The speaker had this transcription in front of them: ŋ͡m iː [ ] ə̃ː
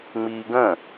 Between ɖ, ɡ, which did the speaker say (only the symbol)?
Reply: ɡ